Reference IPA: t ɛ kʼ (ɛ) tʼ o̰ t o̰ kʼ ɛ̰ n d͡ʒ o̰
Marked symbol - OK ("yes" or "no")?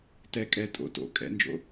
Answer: yes